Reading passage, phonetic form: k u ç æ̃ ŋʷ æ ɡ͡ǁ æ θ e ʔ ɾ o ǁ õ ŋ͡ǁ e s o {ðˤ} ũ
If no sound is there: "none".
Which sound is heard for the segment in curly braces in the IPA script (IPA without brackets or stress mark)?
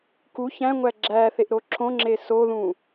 ð